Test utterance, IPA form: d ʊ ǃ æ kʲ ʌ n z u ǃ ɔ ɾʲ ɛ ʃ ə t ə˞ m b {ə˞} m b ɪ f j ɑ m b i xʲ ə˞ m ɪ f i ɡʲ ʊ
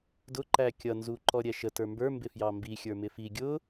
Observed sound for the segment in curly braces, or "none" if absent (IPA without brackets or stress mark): ə˞